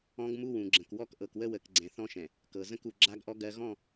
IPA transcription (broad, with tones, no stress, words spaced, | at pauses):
ɔ̃˦ɡmu˦ wũ˨ɡ͡ǁə̃˨kwɔ˦k ʔɤ˨kwə˦wə˨kɡ͡ǀɛ̃˨ θɔ̃˦ʃɛ̃˨ | kɤ˨ zə̃˦ku˨ ɡ͡ǁa˦ɡʔɔ˦ ɡɜ˦ ɣɔ̃˦˨